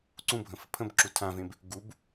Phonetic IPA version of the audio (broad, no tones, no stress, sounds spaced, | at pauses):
ǀ ũ bʱ ə̃ f ə pʰ ə̃ b ǁ u tʰ ã v ẽ b | ɡ u b